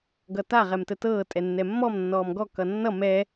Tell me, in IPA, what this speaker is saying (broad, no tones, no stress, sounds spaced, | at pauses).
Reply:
ɡ ʌ t a ʁ ɛ m t ə t ɤː tʼ ɛ nː ɛ mː ɔ m nː ɔː m ɡ ɔ k ʌ nː ʌ m ɛ